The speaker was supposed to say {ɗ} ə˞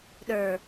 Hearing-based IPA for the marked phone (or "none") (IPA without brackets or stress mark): ɗ